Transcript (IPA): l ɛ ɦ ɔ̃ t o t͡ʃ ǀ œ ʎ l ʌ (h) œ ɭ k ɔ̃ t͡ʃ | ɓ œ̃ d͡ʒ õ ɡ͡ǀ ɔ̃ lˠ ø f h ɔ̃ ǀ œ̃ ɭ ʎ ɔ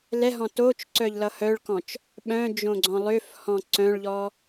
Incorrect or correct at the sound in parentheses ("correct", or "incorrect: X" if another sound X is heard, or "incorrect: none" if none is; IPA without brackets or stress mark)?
correct